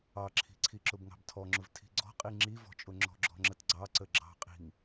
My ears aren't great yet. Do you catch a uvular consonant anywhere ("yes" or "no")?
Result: yes